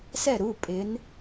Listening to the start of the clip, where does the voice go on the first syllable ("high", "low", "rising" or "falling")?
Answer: falling